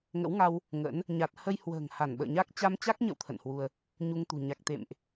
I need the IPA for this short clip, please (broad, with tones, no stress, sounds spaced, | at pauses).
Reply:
ŋ ə̰˧˥ w ŋ a˧ w | ŋ ə̰˧˥ n | ɲ a˨˩ t̚ h ə˧ j h w ə̤ː˨˩ ŋ h a˧˩ n ɓ ə̰ː˧˨ ɲ a˦˥ k̚ t͡ɕ a˧ m t͡ɕ a˦˥ k̚ ɲ ə̰˧˨ w t̪ʰ ə̰˧˨ n h w u˧ ə̯ | ɲ u˧ ŋ t̪ ṳ˨˩ ɲ a˨˩ k̚ t̪ ḛ˧˨ m ʔ